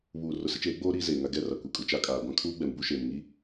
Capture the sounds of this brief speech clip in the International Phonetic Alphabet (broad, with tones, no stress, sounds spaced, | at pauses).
β uː˨ r ʊ˨ s ɪ˦ t͡ʃ eː˨˦ ɡ͡b oː˦ ɾ iː˦ z eː˨ ŋ a˦ ɡ ɛ˦˨ r a˨ kʷ i˨ kʼ u˨ t͡ʃ a˦ kʼ aː˨ ɡʷ ã˦ kʰ uː˦ ɡ͡b ɛ˨ m b u˦ ʃ eː˨ m ŋ i˦